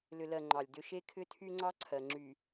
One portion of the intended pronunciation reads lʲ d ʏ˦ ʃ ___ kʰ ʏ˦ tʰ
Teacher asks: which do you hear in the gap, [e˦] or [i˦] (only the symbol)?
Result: e˦